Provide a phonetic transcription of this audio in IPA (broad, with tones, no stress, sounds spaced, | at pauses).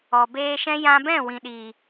ɔ˨ b eː˧ ʃ ɛ̃˦ j ã˧ b ɛ̃˦˨ w ĩ˨ ɗ iː˨